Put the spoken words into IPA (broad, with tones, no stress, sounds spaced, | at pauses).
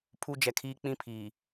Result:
pʰ u˦ d͡ʒ ɛ˨ kʰ iː˦ k͡p ĩ˦ pʰ iː˨